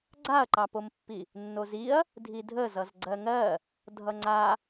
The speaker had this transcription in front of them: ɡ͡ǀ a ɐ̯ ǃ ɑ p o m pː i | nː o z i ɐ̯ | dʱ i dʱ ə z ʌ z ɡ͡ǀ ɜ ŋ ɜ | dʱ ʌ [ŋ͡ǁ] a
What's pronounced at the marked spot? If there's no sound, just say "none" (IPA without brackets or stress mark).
ŋ͡ǀ